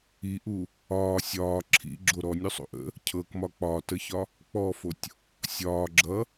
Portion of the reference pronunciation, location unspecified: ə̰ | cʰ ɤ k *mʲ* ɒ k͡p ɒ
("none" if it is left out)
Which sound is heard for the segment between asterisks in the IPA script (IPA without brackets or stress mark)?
m